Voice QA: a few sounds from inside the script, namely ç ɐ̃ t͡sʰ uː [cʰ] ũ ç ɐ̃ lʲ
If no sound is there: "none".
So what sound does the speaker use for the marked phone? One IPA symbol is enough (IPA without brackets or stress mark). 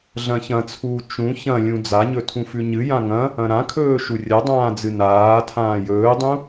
t͡ʃ